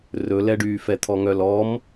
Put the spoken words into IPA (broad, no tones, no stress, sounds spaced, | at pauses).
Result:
r ɵ l ɛ ɖ yː f ɛ t̪ʰ ɔ ŋ œ l ɔ m